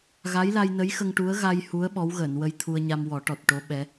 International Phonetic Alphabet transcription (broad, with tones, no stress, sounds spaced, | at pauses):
ɣ a˧˥ j l a˧ j n ə˧˥ j x ə˧ ŋ ʈ u˧˥ ə̯ ɣ a˧ j h u˧˥ ə̯ ɓ ɔ˧˥ w ɣ əː˨˩˨ n w ə˧ j t̪ʰ u˧ ə̯ ɲ a˧ m w ɔ˨˩˦ ʈ ɔ˨˩ t̚ ʈ o˧˥ ɓ ɛ˧˥